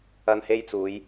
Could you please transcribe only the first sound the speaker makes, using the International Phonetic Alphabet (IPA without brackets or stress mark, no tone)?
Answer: ɐ